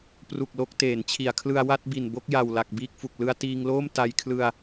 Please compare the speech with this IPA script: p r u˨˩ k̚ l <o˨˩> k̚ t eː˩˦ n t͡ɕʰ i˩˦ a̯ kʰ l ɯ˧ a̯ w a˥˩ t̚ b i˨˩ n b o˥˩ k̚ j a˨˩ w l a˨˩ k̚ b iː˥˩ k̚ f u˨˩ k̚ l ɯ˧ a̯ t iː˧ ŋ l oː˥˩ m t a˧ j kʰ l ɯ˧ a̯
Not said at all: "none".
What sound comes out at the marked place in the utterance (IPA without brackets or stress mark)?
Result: o˥˩